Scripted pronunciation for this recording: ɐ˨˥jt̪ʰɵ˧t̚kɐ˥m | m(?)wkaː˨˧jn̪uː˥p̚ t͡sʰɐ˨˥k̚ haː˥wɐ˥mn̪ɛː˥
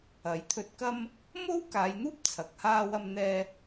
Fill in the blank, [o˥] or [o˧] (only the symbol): o˥